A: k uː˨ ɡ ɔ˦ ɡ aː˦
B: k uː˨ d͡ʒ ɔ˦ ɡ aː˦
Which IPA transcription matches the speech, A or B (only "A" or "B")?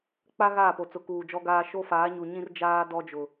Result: B